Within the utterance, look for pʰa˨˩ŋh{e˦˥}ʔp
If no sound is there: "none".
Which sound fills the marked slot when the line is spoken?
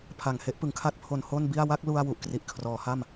e˦˥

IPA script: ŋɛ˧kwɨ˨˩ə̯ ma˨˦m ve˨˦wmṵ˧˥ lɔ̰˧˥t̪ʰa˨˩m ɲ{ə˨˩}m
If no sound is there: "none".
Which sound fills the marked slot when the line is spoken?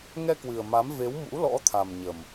ə˨˩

